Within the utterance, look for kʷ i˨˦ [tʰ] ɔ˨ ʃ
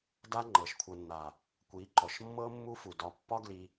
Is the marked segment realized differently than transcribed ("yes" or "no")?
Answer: yes